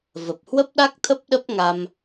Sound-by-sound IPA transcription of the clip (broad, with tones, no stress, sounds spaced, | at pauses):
v ə˨˩ p̚ h w ə˦˥ p̚ ɗ a˦˥ k̚ t̪ʰ ə˦˥ p̚ ɗ ə˦˥ p̚ ŋ a˧ m